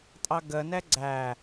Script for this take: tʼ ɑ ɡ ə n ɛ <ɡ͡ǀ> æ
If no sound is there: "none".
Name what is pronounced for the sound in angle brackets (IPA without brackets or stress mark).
ɡ͡ǀ